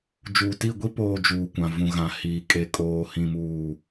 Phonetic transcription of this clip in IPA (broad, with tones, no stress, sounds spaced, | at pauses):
d͡ʒ uː˨ t i˦˨ ɡʷ i˦ p oː˨ d͡ʒ uː˨ kʷ ã˨ v ũ˨ ɣ ã˨ h iː˨ kʼ e˨ kʼ oː˨ h ĩ˨ m uː˨